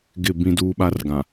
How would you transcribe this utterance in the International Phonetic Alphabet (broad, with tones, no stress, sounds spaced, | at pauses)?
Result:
ɡ ɪ˦˨ b ĩ˦ d uː˦ ɓ a˦ r ɡ ã˨